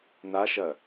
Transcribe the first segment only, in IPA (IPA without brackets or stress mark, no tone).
n